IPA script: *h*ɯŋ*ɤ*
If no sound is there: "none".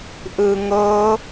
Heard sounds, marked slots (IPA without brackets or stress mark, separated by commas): ʔ, ɤ